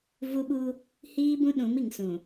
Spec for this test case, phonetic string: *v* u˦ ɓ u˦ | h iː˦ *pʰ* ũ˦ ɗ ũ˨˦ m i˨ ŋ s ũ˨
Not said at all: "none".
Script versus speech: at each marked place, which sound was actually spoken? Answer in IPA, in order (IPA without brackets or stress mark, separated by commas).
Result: v, b